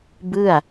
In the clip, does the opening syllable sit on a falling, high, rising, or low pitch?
falling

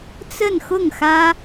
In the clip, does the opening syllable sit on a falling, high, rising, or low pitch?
falling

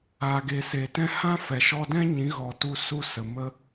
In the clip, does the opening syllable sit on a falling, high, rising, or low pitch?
low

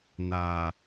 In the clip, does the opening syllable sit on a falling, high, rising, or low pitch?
low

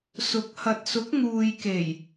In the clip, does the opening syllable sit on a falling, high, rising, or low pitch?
rising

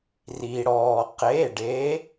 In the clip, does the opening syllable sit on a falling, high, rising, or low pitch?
low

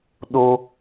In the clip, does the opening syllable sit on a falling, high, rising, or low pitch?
high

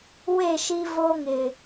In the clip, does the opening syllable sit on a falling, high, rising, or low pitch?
falling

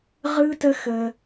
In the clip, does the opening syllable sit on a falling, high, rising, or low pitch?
high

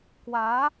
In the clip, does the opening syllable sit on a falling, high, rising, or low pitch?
rising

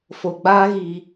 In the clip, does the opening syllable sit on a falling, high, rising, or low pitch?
low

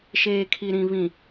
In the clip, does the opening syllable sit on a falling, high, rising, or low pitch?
low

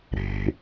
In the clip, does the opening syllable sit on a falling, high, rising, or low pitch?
low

